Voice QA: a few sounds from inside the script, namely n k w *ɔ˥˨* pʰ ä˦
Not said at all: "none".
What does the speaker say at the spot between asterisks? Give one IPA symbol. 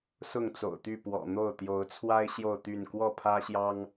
ɔ˥˨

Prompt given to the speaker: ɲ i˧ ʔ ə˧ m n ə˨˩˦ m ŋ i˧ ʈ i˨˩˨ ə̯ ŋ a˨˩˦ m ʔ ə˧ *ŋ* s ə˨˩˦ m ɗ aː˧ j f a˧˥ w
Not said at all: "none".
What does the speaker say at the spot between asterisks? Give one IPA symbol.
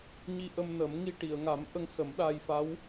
ŋ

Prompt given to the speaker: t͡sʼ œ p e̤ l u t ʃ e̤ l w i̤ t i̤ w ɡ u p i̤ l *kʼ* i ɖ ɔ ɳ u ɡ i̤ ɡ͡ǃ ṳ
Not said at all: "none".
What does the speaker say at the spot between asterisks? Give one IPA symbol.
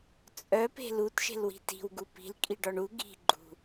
kʼ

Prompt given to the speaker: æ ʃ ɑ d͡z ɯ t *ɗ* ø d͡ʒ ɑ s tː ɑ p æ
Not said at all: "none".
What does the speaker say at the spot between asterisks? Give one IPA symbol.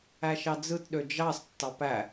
ɗ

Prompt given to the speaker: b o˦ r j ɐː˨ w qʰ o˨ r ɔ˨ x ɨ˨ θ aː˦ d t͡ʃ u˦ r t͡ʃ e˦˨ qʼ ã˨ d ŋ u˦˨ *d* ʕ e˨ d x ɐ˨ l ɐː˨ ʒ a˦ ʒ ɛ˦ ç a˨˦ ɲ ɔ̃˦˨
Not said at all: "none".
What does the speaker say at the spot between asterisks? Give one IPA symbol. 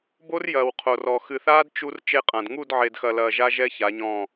d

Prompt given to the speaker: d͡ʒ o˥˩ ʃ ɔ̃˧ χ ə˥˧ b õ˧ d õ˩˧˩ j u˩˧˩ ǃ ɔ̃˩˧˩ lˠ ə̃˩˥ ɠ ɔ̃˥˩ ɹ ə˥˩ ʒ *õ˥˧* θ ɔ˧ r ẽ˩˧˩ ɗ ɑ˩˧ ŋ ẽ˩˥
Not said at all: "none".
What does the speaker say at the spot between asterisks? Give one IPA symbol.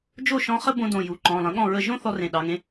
õ˥˧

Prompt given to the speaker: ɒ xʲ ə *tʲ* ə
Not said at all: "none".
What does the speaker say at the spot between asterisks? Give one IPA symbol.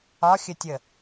tʲ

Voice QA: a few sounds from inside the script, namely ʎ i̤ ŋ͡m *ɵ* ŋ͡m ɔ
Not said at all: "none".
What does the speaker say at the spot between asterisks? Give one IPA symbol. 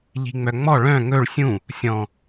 œ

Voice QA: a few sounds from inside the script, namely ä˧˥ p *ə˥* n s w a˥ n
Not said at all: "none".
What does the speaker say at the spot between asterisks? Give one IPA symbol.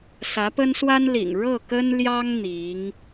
ə˥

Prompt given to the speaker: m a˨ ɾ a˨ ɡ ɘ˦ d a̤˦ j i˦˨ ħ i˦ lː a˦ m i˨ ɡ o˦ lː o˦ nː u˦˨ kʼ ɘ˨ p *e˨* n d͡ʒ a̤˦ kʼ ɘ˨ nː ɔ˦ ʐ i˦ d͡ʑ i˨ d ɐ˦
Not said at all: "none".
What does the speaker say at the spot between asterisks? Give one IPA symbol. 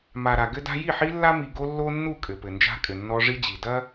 ɘ˨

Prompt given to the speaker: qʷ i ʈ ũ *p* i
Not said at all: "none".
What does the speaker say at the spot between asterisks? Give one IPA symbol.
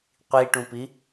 p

